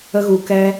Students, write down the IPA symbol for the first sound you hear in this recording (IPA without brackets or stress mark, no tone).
ə